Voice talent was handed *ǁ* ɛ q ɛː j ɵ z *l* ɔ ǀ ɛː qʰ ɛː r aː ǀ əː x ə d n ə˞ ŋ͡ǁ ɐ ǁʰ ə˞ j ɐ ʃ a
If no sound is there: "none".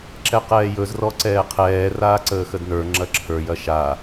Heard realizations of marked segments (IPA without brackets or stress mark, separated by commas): ǁ, r